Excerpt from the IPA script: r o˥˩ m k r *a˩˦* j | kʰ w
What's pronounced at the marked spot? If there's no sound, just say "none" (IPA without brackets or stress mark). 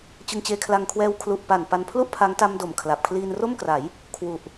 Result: a˩˦